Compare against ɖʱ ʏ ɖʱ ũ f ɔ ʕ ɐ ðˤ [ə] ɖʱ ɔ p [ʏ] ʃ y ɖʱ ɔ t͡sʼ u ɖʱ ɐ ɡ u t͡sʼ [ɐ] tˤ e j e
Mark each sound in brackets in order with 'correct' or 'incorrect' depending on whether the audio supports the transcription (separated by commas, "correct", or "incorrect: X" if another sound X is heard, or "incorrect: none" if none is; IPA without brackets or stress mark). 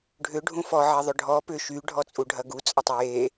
incorrect: ʏ, correct, correct